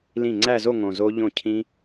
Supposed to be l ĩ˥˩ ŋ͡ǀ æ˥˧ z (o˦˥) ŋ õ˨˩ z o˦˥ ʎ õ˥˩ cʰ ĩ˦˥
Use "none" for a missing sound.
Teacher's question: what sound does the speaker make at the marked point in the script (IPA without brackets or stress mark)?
o˥˧